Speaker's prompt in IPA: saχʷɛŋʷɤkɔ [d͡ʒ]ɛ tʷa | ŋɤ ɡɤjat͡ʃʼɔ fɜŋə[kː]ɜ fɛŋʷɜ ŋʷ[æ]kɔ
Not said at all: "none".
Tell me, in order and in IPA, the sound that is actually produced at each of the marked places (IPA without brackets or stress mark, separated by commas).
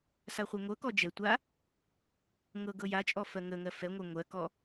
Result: d͡ʒ, ŋ, ɜ